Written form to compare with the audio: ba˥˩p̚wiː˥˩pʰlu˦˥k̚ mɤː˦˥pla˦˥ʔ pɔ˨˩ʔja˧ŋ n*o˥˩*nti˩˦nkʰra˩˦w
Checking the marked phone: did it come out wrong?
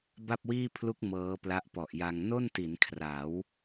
no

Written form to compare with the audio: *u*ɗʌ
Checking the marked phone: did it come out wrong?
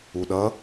no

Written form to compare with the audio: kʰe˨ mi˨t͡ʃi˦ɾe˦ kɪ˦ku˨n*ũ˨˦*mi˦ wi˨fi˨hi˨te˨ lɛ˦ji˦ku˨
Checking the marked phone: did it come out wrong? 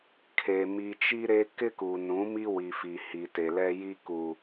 no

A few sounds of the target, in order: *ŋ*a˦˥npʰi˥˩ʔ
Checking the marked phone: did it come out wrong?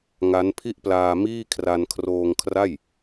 no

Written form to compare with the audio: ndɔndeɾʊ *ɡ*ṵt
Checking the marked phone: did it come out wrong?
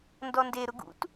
no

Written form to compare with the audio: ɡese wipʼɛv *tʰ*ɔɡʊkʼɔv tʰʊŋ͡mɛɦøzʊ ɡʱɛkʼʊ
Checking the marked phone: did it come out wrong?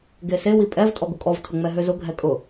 yes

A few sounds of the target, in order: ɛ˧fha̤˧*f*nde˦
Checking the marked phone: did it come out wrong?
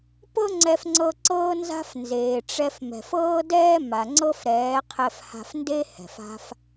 no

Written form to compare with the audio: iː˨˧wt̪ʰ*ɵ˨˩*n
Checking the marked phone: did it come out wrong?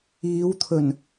no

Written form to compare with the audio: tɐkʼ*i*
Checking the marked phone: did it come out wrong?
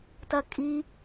no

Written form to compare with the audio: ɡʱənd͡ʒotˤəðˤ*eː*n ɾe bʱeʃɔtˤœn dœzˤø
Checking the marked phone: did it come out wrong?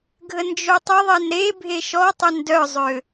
yes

